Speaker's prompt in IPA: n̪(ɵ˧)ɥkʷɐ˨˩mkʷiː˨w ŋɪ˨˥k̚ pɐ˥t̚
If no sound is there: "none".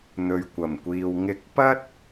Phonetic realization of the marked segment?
ɵ˨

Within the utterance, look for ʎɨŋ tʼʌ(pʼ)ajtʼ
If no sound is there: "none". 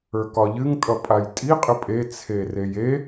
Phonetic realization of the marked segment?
pʼ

